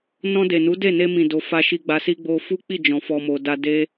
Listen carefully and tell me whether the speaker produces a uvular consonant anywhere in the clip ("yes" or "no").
no